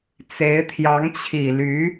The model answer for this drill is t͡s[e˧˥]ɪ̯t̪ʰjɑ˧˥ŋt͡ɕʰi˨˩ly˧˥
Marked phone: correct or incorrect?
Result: correct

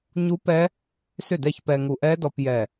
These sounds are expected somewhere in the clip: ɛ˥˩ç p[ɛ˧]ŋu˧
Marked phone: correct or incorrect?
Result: correct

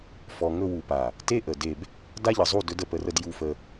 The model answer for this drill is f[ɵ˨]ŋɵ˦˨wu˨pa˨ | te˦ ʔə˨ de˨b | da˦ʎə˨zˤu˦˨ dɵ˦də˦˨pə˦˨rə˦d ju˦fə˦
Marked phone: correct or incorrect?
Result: incorrect: ɔ˨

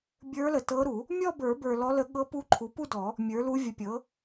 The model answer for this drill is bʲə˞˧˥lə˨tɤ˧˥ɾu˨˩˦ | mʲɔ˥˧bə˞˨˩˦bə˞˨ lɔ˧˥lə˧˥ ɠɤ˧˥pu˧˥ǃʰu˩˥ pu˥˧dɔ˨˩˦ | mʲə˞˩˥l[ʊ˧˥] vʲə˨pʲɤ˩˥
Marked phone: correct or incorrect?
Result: incorrect: u˧˥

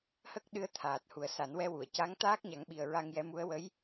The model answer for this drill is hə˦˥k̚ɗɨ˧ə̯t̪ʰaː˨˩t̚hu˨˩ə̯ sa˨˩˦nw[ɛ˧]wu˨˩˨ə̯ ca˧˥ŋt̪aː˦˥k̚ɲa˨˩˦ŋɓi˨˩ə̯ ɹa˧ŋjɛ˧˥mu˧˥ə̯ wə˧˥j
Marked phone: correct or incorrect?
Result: correct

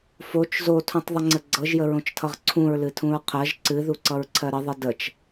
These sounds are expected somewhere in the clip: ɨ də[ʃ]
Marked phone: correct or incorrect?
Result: incorrect: t͡ʃ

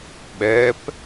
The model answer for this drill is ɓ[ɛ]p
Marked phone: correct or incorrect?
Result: correct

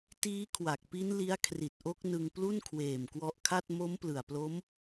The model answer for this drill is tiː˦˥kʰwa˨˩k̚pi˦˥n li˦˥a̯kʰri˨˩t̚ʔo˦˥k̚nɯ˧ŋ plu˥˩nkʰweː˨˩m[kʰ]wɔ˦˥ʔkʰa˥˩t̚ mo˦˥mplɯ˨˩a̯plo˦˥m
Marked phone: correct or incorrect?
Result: incorrect: k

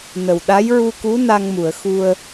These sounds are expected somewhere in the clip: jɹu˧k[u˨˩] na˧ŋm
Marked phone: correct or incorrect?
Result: incorrect: u˧˥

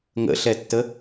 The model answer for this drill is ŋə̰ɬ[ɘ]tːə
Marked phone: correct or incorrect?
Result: incorrect: ɛ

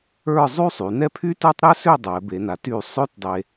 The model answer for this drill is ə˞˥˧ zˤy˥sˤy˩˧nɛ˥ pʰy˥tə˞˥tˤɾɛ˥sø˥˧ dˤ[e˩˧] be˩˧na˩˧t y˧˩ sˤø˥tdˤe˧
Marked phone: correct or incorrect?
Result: incorrect: ɛ˩˧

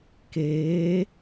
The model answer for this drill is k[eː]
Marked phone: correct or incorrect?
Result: correct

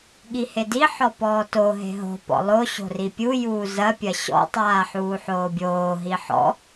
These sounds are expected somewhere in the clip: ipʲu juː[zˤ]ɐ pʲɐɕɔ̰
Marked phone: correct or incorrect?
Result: incorrect: z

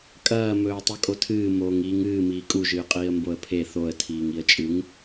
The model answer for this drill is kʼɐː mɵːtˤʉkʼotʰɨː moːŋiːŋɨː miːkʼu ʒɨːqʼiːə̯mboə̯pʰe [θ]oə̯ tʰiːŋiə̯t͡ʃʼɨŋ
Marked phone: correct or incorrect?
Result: correct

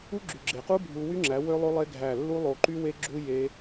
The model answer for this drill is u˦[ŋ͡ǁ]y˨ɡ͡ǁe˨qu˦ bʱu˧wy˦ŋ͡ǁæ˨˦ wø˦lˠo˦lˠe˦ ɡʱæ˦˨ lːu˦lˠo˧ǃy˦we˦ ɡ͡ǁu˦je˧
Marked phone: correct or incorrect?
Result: incorrect: ɡ͡ǁ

